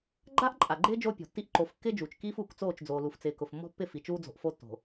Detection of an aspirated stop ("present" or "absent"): absent